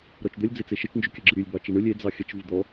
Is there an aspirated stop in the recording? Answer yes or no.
no